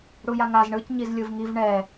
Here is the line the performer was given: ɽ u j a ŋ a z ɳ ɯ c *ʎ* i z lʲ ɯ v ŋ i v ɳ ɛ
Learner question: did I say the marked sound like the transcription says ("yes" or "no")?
no